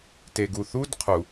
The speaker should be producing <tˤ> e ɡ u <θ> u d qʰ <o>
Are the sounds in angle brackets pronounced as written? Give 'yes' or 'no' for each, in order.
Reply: no, yes, no

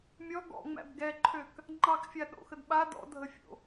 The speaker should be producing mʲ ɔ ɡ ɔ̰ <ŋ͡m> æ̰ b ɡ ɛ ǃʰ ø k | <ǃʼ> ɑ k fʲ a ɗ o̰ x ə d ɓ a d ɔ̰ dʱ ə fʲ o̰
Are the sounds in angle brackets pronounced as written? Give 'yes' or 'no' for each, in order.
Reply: yes, no

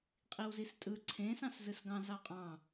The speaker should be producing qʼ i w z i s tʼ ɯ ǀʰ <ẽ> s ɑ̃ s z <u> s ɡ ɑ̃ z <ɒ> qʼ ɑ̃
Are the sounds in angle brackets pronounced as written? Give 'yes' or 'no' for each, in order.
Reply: yes, no, no

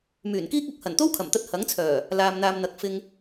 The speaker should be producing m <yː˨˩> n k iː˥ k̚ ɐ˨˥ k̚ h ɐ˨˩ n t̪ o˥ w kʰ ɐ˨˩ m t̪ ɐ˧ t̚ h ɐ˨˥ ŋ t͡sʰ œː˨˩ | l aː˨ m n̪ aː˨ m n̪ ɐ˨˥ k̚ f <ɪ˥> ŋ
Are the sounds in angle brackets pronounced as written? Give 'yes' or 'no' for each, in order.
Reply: yes, no

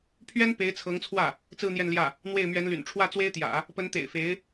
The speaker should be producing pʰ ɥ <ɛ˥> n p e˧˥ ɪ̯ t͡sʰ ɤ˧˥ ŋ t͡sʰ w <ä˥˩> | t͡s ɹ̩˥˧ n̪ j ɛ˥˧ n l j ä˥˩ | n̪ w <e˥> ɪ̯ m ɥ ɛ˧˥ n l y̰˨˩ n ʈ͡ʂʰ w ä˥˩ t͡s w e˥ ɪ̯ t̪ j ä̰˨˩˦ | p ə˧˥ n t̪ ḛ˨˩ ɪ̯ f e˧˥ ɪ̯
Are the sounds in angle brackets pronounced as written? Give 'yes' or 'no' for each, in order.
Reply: yes, yes, no

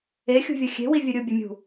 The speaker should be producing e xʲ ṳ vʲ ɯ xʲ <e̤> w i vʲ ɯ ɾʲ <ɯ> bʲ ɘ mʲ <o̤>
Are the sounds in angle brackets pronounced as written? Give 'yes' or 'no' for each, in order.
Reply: yes, no, no

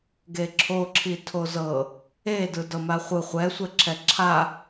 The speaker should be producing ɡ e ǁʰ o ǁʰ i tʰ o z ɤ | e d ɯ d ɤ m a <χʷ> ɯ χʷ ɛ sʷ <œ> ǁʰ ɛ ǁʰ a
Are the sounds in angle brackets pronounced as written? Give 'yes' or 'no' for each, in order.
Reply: yes, no

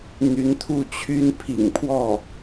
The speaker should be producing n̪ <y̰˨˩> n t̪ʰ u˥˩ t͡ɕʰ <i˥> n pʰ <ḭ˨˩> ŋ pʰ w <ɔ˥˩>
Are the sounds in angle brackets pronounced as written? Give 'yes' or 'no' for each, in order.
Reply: no, no, yes, yes

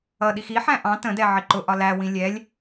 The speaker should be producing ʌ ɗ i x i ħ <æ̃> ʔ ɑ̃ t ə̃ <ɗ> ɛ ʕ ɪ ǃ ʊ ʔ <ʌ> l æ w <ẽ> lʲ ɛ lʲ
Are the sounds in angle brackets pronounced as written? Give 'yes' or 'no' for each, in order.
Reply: yes, no, no, no

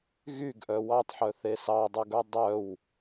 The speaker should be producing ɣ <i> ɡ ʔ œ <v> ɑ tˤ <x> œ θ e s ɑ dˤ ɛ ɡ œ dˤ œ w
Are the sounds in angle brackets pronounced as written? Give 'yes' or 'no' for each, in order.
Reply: no, no, no

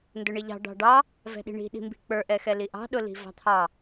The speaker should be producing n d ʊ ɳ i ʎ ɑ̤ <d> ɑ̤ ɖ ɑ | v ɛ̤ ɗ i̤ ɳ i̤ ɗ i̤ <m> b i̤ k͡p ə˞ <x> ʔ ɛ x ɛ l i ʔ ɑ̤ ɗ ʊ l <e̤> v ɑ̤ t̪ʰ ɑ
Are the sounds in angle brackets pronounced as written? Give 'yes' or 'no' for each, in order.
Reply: no, yes, no, no

